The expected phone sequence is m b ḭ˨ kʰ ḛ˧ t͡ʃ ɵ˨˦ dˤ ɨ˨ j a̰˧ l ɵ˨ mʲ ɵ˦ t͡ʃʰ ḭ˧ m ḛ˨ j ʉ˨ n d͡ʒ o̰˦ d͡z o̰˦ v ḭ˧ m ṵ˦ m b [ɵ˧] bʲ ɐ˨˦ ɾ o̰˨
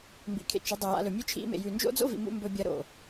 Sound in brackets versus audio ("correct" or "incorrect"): correct